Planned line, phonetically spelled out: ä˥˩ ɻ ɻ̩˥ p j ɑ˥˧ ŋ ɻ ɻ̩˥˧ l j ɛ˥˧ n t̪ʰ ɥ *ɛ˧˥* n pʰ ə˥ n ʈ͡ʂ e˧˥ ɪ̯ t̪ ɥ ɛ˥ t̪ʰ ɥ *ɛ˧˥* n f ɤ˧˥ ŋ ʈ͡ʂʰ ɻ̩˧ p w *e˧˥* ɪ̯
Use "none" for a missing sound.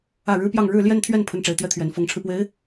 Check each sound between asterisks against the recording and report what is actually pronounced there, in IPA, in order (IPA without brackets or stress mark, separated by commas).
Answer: ɛ˥˩, ɛ˧˥, e˧˥